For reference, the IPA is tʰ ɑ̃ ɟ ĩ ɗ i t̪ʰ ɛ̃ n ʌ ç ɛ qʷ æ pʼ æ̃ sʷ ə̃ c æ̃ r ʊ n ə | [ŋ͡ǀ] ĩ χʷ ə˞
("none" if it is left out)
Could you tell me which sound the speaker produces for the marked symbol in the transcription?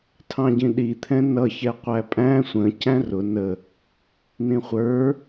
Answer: n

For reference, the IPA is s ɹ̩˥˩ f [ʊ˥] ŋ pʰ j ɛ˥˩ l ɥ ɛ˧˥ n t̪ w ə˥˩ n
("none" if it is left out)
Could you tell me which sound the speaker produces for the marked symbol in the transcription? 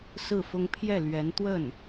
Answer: ʊ˥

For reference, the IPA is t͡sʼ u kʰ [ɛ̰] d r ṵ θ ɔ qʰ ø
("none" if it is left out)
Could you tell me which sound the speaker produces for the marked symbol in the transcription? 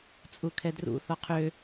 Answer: ɛ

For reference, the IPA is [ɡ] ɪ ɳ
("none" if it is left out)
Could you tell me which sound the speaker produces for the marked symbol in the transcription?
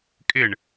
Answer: kʼ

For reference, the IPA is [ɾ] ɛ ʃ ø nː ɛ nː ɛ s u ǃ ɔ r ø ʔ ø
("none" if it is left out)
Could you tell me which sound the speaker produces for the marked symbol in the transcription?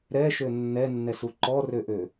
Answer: ɾ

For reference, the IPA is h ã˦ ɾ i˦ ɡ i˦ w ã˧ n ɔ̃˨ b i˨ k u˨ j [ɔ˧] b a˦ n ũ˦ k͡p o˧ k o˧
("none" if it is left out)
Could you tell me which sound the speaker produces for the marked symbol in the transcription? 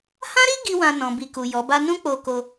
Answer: ɔ˨˦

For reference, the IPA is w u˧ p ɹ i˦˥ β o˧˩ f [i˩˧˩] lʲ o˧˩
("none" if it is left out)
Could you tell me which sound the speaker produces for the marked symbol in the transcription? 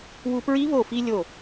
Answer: i˧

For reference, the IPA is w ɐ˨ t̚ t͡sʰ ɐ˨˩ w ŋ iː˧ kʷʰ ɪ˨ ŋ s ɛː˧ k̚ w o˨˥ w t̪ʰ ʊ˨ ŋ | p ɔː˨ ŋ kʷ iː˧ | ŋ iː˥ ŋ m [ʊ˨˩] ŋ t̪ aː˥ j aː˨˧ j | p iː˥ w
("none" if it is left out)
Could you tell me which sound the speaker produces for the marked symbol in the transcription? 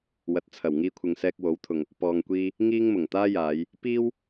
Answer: ʊ˨˩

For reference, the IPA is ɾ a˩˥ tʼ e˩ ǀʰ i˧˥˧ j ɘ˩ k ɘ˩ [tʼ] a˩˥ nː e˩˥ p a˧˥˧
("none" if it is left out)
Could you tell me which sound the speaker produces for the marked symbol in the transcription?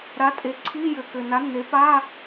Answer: n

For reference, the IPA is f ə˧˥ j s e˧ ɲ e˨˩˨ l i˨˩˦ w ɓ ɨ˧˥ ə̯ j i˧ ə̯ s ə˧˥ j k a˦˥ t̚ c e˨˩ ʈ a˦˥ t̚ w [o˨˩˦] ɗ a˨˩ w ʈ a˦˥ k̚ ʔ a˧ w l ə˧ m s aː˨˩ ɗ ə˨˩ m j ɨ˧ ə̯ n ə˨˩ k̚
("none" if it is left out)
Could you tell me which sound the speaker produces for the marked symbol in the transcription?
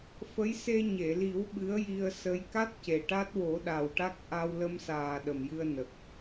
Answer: o˨˩˦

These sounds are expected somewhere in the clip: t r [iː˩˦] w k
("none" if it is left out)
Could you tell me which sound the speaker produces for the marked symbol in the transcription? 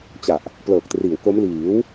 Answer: iː˩˦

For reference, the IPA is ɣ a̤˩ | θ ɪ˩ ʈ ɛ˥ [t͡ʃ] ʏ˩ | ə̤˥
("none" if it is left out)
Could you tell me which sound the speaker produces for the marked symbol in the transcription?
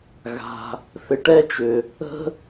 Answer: t͡ʃ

